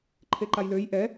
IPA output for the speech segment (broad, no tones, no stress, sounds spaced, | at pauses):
ǃʰ e ǃ a j l ø j ʔ ɛ